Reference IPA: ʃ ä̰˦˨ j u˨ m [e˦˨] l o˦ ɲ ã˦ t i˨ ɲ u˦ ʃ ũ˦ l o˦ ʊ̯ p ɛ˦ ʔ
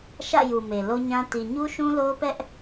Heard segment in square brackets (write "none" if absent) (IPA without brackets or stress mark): e˨